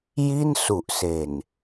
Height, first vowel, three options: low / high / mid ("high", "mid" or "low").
high